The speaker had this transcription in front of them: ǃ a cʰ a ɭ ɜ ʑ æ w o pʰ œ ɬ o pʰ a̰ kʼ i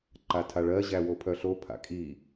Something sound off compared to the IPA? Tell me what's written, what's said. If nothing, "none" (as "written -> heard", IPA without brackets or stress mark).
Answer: cʰ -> tʰ